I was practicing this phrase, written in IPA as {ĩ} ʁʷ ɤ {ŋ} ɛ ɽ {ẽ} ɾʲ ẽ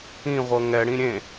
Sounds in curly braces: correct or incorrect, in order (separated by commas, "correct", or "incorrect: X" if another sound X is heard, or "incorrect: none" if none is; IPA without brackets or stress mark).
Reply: correct, correct, incorrect: ĩ